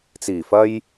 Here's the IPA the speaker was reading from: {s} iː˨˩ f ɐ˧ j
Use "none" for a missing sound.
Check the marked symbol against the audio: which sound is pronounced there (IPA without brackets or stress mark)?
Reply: t͡s